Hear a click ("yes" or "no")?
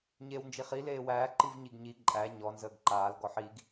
yes